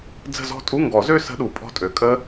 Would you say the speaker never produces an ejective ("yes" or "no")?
no